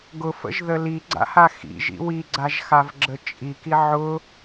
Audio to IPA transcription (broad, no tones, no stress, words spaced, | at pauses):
ɡʊfə̰ʒðə liɡ͡ǀa̰ha xḭʒḭ wiɡ͡ǀaʒxavɡ͡ǁə t͡ʃʼiki ʕʊ